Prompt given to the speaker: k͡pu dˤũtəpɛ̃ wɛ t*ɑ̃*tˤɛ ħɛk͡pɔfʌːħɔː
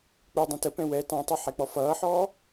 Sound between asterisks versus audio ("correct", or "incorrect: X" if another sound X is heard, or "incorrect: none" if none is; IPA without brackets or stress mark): correct